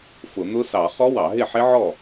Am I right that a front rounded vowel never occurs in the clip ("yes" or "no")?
yes